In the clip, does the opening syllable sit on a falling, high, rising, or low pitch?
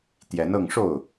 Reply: rising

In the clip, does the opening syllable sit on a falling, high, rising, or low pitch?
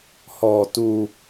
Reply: low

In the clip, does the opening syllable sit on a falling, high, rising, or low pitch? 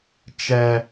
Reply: high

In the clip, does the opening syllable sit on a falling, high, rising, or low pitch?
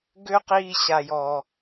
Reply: high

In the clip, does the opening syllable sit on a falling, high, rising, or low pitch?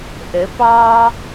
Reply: rising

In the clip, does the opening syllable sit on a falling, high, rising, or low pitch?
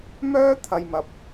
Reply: high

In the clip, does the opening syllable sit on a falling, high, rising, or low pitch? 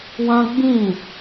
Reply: high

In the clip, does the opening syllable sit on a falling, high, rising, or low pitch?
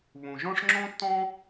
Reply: low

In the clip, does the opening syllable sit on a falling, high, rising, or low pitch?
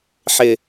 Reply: falling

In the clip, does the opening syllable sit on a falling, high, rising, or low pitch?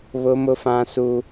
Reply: high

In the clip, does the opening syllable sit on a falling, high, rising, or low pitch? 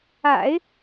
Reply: low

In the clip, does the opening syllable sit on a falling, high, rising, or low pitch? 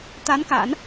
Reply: rising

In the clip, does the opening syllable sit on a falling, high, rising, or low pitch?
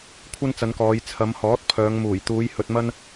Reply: high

